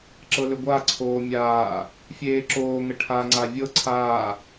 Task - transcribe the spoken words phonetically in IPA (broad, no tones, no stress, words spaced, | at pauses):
ǁɤlʏɡʷaǀʰoː mʲaː | fʲeːǁoːŋə ʈʰaŋ͡ǀa vʲɤ ǀʰaː